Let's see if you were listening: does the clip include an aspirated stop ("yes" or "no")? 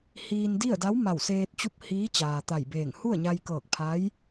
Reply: yes